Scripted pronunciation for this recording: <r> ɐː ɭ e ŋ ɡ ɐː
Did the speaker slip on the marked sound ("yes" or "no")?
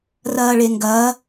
no